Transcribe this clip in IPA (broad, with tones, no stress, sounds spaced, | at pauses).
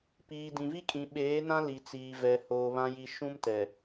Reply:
p iː˨ d ĩ˨ v i˦ kʼ ĩ˨ ɓ eː˨˦ n ã˦ l i˨ t͡s iː˨ v ɛ˨ h oː˨ β ã˨ j i˨ ʃ ũ˦ m t ɛ˨